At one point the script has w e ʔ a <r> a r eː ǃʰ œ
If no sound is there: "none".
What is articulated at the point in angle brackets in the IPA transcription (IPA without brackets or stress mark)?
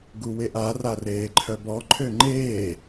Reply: r